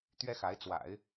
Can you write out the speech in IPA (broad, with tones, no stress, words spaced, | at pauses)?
t̪ɥɛ˥xa˧˥ɪ̯ t͡swa̰˨˩˦ɪ̯